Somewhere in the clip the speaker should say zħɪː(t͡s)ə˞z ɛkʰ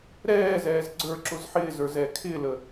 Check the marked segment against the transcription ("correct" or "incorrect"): incorrect